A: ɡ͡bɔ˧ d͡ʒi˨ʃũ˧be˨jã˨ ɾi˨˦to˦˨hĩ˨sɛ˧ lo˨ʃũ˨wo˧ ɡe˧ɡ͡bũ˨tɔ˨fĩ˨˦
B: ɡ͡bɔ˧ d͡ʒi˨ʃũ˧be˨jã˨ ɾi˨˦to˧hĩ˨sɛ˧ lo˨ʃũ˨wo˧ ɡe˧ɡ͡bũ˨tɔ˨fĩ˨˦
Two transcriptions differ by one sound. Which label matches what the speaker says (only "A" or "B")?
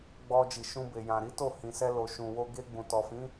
A